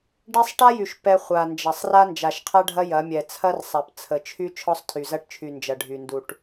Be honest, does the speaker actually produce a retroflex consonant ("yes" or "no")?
yes